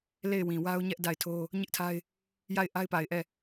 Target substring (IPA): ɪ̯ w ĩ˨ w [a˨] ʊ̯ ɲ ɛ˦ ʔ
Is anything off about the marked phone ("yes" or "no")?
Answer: yes